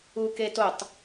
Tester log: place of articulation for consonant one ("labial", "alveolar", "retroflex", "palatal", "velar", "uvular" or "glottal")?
velar